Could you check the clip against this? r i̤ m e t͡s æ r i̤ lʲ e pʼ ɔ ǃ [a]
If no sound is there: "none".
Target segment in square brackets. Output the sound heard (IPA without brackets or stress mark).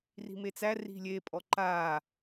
a